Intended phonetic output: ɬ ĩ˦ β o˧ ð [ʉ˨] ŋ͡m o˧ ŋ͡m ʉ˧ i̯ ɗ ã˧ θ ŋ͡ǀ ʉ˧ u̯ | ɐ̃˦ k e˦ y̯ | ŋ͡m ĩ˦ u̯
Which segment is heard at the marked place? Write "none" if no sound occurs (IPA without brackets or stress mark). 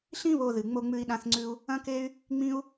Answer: ɨ˨